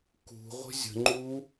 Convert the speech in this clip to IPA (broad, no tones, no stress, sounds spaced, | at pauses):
k ṳ ʁʷ ə̤ zʲ ə̤ ŋ͡ǃ u